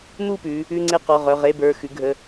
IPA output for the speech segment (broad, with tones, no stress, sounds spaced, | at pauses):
n̪ u˥˨ p ʉ˩˧ | ʉ˧˥˧ ŋ͡ǀ e˥˨ q ɔ˩˧˩ ʁ œ˩˧˩ ʁ e˧˥˧ b ə˞˩˧˩ x ʉ˩˧ ɡʱ ə˩˧˩